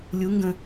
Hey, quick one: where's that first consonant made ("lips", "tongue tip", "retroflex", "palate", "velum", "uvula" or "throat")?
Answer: tongue tip